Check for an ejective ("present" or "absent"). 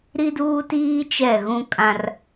present